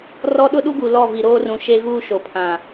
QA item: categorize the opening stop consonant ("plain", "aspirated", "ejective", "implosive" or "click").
implosive